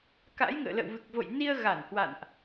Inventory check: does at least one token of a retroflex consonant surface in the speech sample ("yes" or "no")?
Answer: no